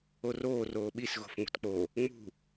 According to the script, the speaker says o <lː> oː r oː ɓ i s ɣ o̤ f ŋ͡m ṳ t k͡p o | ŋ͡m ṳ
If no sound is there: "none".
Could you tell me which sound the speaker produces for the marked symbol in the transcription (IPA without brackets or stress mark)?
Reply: r